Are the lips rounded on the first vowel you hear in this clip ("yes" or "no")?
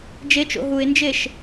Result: no